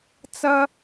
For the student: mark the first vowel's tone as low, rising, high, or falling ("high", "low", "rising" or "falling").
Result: high